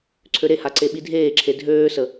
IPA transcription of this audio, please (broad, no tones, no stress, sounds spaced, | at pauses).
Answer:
ǀʰ ø ɾ e h a ǀ e ɓ i dʱ eː ǁʰ e dʱ øː s ə